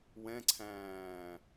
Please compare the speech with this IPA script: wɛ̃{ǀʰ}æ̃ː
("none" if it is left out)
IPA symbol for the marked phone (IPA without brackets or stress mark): ǀʰ